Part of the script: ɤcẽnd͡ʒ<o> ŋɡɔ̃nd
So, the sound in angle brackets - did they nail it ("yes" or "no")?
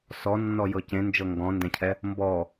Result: no